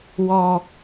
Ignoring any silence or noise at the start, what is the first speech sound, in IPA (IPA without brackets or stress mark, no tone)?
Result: w